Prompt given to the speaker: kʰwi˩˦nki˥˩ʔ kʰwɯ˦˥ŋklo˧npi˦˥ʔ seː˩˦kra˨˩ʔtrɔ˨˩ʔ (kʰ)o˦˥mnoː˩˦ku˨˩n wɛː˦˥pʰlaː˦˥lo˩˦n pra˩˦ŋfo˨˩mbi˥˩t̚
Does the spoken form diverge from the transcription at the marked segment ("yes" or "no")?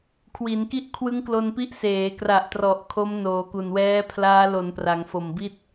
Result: no